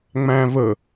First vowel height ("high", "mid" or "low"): low